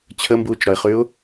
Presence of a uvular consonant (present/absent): present